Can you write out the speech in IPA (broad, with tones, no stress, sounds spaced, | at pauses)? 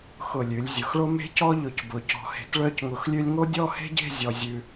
x ʊ˧˩ lʲ ʉ˩˧ lʲ zʲ ʊ˩˧ x ɭ o˥ m e̤˥ c ɔ˥ ʎ ʊ˧˩ c b ʊ˩˧ c ɔ̤˧ h e̤˧ t ɭ œ˥˧ c ŋ ʊ˧ x lʲ ʉ˥ lʲ ŋ o˥ dʲ ɔ˥˧ h e̤˥ ɟ e̤˥˧ zʲ ɔ˧ zʲ ʉ˧